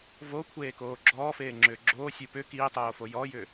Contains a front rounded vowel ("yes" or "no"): yes